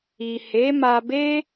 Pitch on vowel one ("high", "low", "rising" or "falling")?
low